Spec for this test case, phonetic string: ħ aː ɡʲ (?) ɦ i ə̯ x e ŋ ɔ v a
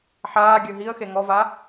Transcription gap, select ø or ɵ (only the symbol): ø